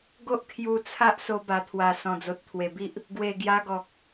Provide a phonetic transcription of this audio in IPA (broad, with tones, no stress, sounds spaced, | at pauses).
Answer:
ɡ o˦ ʔ kʰ j u˧ t͡sʰ a˦ ʔ s o˧ b a˨˩ t̪ʰ w a˨˩ s ɔ̃˨˩ d͡z o˨ t̚ t̪ʰ w e˨˩ b i˦ ʔ | ɡ w e˨˩ ɡ j a˧ ɡ ɔ˨ k̚